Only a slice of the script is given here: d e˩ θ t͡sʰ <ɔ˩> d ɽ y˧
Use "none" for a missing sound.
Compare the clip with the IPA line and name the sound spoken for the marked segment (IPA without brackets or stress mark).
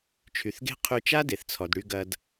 ɔ˩